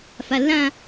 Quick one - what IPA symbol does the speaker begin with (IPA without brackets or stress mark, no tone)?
f